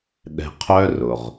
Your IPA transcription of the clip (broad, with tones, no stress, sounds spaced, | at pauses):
ɗ ɛ̤˧ qʰ œ˥ r ʊ˩ ʁ